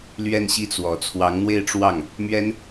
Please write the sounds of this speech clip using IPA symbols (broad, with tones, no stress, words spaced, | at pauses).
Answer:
lɥɛ˥˧nɕi˥˩t͡swɔ˨˩ t͡sʰwɑ˧˥ŋn̪we˥˧ɪ̯ʈ͡ʂwɑ˥˩ŋ | mɥɛ˥n